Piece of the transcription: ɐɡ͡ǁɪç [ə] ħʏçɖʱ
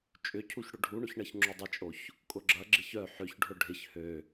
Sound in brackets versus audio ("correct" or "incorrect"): incorrect